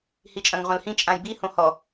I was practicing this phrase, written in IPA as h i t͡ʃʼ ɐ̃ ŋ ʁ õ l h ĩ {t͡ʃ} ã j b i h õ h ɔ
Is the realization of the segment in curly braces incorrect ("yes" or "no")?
yes